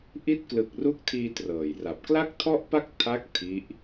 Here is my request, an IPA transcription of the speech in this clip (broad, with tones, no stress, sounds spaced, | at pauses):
ʔ i˦˥ t̚ k l ɯ˨˩ k̚ r u˦˥ k̚ tʰ iː˧ t r ɤː˨˩ j r a˨˩ p̚ k l a˥˩ k̚ tʰ ɔ˥˩ ʔ p a˥˩ k̚ tʰ a˦˥ k̚ tʰ i˦˥ ʔ